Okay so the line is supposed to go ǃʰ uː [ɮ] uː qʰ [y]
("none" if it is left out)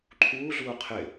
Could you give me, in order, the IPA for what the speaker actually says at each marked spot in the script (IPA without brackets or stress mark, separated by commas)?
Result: ɮ, ɪ